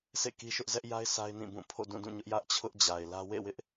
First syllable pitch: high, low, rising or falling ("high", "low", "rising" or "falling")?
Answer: falling